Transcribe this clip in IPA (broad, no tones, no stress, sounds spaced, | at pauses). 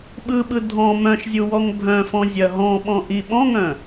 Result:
ɓ ɯ ɓ ɯ dʱ ɔ̃ m œ̃ ʃ zʲ u w ɔ ŋ bʱ œ̃ f ɔ̃ zʲ ɐ ɦ ɔ̃ ɓ ɔ̃ ʔ i ɓ ɔ̃ ŋ œ̃